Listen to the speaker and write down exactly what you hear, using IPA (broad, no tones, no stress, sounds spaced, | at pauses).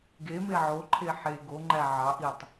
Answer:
ɡ e m e ʕ o ǃʰ e ħ e ɡ o ŋ͡ǃ æ ʕ ɑ ʔ i tˤ